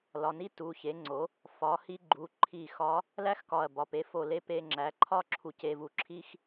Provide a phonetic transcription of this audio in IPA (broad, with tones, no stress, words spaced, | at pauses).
lɒ˩˧˩ni˥ tu˩˧˩çe˩˥ŋ͡ǀo˩˥ | fɒ˩˥hi˧˥ ɡ͡ǃu˩˧˩ǃʰi˧˩xɒ˧˥ | læ˥xkɒ˧˩ɐ̯bɒ˩˧˩pe˩˥ fo˧˩le˧˥pe˧ ŋ͡ǁæ˩˥ǃʰɒ˥ ǁʰu˧ce˧vu˧ ǁʰi˥x